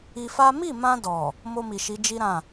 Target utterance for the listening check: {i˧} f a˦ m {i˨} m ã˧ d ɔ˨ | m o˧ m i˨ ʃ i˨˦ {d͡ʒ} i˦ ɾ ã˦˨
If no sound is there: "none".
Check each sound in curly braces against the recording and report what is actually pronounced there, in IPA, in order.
i˧, i˦˨, d͡ʒ

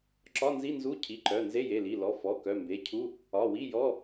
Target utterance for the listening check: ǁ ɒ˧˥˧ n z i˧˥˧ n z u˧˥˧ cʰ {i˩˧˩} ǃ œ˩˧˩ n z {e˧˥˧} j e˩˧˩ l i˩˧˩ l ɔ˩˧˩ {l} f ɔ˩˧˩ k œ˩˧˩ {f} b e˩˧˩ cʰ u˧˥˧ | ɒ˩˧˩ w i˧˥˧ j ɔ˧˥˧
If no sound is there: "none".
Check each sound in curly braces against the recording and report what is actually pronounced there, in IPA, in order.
i˩˧˩, e˧˥˧, none, m

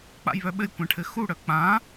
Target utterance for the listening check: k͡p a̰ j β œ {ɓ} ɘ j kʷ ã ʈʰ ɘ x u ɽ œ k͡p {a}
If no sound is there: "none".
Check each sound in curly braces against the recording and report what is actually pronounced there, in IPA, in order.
ɓ, ã

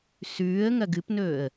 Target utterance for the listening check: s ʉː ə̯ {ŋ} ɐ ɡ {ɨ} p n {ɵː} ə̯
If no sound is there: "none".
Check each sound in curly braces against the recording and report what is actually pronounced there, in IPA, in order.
ŋ, ɨ, ɵː

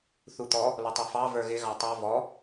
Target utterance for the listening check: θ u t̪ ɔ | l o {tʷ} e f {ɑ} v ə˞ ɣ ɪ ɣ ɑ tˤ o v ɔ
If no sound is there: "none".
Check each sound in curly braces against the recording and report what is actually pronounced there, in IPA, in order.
tˤ, ɑ

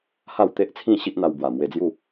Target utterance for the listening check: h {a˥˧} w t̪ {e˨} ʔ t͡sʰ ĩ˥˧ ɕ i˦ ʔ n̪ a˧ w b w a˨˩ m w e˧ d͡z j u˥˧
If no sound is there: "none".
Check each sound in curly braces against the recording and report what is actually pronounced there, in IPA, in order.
a˥˧, e˦

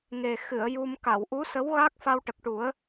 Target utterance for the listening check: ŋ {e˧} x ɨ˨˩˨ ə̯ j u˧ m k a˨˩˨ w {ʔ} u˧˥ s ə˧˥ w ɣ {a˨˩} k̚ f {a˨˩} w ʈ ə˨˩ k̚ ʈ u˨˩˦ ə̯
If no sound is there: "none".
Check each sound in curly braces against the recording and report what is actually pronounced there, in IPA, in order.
e˨˩, ʔ, a˦˥, a˧

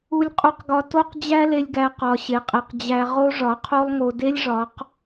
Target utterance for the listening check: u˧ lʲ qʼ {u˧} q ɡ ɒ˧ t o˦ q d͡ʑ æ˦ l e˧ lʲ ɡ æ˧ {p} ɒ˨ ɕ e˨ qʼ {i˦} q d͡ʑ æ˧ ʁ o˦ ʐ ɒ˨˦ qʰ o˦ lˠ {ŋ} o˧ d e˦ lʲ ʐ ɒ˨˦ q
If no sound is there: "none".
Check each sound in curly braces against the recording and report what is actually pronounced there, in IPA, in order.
u˧, q, i˨, ŋ

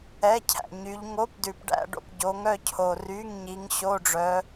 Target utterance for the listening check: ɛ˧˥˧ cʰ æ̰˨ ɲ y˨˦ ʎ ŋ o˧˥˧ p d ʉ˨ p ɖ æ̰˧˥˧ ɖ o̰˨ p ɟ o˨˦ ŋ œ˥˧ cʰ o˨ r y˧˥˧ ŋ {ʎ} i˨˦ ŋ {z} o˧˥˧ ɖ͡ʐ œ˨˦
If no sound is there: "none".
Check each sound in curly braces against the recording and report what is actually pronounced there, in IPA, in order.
ɲ, ɕ

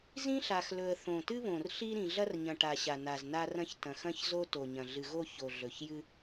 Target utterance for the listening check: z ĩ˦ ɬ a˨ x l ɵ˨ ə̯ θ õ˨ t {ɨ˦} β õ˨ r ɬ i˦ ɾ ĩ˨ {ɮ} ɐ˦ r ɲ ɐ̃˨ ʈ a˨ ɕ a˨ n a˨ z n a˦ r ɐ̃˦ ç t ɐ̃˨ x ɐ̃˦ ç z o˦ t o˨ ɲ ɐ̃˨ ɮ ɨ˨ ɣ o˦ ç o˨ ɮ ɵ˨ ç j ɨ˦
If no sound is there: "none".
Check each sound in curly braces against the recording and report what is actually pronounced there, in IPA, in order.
ɨ˦, ɮ

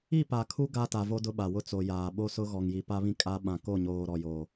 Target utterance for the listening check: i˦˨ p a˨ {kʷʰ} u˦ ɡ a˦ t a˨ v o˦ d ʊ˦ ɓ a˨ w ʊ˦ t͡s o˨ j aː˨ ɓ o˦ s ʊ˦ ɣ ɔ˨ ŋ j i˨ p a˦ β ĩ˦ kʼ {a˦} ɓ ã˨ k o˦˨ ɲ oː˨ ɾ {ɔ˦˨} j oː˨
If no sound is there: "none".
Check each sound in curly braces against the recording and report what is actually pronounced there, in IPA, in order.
kʰ, a˦, ɔ˨

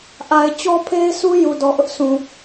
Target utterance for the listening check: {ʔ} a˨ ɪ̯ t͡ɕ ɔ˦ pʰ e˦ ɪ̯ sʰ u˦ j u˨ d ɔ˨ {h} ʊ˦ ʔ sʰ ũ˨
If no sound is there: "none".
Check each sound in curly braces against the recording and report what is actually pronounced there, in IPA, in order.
ʔ, ʔ

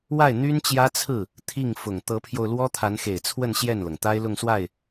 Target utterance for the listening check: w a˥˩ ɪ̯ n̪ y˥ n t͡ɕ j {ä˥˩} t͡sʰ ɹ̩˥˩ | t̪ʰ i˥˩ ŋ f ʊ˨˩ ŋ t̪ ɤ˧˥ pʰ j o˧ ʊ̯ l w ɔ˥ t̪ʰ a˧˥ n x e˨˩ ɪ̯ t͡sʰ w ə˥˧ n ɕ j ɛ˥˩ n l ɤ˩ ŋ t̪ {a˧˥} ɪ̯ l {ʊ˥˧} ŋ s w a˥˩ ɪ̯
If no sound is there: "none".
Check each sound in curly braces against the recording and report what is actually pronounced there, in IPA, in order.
ä˥, a˥, ʊ˥˧

